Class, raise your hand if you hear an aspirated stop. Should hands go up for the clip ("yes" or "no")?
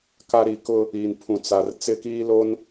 yes